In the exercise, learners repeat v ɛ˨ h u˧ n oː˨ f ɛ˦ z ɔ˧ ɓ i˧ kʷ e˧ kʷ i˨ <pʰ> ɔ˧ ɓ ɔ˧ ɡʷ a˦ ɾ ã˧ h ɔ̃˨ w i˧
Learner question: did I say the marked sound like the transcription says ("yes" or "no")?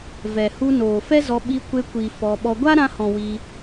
no